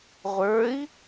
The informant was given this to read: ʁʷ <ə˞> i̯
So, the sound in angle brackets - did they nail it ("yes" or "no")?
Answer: yes